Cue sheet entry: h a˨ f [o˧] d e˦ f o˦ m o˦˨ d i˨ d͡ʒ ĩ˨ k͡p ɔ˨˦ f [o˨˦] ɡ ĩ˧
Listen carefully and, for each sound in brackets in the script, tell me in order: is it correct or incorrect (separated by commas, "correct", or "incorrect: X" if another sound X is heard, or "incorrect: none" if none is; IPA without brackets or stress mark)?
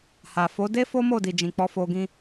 incorrect: o˨˦, incorrect: o˧